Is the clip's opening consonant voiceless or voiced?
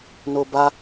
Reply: voiced